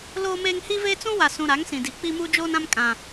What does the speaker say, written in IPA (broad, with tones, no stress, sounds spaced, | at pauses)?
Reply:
l oː˦ m eː˦ ŋ h i˦ v eː˦ t͡s ũ˦ w a˨ s ũ˨ ɾ a˨˦ ŋ s ĩ˨ d i˨ k͡p i˦ m u˦ d͡ʒ oː˦ n ã˦ m kʼ ã˦